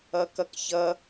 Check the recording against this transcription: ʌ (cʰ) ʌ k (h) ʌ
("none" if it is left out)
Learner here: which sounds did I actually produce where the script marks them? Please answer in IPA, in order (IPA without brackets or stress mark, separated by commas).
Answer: k, ç